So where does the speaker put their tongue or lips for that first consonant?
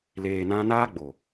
tongue tip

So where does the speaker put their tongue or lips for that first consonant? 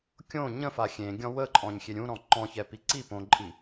velum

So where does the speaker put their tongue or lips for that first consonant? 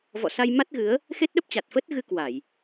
lips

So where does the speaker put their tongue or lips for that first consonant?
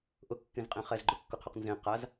throat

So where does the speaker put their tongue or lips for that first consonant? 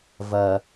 lips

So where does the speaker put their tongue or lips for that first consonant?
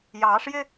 palate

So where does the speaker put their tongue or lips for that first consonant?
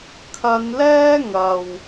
velum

